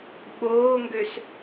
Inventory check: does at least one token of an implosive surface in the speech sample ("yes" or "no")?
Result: yes